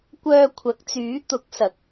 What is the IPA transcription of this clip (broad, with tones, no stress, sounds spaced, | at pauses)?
kʷ œː˧ kʷʰ ɐ˨˥ k̚ t͡s yː˨˥ t̪ ʊ˨˥ k̚ s ɐ˨˥ k̚